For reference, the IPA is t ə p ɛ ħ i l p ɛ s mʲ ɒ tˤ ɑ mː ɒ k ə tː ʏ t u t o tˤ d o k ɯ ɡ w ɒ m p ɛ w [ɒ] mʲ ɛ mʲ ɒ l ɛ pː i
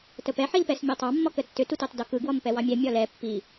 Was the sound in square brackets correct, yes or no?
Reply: no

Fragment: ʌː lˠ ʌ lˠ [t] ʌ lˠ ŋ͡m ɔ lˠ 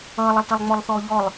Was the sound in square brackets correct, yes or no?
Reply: yes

